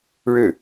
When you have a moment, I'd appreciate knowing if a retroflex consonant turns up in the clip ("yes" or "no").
yes